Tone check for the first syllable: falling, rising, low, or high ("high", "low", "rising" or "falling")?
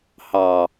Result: low